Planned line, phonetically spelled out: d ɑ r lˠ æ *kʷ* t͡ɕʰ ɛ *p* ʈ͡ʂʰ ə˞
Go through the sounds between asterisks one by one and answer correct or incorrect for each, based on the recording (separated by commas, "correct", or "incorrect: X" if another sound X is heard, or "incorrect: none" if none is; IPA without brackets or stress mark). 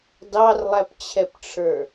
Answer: incorrect: p, correct